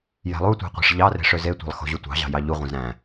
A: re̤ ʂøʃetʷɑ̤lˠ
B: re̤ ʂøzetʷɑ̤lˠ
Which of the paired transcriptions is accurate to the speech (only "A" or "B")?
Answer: B